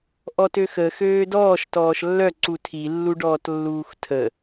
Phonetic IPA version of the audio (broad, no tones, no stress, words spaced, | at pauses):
ʔɔtøxə xøːdɔːʃ tɔːʃlːœ ǀutʰi lːuɖɔːtlːuːxtʰə